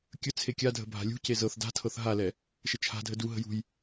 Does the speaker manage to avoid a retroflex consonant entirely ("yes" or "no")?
yes